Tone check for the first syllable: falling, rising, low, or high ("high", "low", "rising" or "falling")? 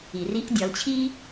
low